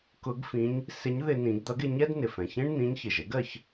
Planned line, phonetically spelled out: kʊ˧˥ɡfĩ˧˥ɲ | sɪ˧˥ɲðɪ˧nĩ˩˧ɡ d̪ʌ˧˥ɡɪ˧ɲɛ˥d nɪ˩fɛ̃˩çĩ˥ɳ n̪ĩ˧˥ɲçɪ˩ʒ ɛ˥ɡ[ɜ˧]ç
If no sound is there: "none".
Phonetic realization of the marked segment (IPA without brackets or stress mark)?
ɜ˧